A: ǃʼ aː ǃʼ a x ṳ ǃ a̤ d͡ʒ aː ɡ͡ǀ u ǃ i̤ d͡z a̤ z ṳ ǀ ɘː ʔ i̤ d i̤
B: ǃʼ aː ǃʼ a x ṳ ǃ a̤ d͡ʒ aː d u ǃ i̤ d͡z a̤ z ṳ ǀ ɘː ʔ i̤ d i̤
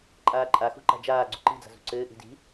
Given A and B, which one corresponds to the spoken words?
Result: A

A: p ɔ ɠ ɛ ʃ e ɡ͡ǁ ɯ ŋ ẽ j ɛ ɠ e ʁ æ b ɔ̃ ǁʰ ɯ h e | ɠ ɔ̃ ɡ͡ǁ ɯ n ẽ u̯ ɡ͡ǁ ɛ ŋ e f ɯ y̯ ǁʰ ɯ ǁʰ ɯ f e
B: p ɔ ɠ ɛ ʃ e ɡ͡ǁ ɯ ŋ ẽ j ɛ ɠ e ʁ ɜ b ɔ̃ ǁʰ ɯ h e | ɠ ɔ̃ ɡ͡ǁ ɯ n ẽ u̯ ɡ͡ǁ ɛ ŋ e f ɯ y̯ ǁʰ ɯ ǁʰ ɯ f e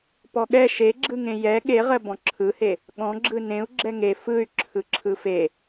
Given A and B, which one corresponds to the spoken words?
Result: B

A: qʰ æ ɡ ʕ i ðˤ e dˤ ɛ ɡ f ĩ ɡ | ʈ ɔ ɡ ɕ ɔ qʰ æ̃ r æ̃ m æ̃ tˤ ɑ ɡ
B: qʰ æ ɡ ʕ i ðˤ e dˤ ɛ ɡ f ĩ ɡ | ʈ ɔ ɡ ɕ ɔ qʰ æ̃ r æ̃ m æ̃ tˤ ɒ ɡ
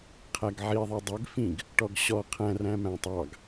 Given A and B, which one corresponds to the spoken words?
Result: A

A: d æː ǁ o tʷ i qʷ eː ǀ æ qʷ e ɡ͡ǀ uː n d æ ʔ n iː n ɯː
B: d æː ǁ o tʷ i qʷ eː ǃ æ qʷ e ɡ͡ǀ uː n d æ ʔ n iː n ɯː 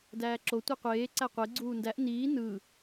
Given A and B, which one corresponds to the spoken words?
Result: A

